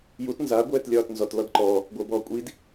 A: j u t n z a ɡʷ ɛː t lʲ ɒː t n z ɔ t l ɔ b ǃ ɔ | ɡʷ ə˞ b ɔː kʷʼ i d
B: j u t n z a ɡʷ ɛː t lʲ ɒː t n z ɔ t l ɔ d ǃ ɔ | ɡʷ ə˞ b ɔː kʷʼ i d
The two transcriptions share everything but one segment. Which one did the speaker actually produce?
B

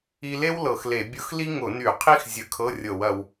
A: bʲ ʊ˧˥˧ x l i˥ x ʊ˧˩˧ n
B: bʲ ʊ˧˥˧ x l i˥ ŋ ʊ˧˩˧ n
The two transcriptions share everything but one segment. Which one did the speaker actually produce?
B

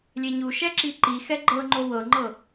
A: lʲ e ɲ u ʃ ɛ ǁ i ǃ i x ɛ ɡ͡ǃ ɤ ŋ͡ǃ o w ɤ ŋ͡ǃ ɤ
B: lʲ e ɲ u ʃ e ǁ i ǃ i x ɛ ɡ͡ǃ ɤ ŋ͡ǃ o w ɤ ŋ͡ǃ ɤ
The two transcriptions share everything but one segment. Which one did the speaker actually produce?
A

